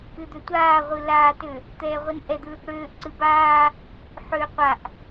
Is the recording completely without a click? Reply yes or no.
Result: no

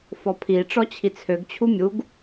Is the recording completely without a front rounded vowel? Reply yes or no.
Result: no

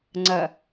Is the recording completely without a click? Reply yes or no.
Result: no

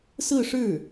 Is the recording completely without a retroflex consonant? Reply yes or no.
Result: no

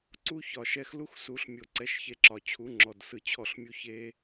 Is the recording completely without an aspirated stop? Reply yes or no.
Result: no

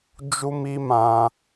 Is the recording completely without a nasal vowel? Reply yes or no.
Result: no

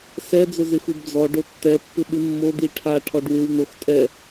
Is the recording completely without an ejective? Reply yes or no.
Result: no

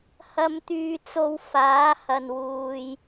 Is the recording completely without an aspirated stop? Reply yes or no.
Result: yes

